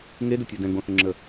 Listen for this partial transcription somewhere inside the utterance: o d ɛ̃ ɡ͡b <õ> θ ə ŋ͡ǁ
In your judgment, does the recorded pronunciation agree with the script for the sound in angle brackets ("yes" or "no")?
yes